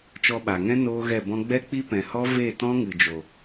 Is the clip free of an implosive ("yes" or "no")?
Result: no